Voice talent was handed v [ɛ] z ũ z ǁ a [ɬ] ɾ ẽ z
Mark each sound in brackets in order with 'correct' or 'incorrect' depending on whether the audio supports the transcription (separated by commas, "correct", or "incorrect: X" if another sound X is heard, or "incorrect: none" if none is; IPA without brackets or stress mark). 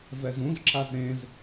correct, incorrect: z